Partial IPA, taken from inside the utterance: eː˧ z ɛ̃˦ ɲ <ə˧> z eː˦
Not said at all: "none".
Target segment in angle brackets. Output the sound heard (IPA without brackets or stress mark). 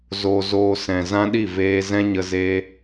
ə˧